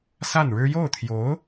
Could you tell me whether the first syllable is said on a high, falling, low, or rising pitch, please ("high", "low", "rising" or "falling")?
falling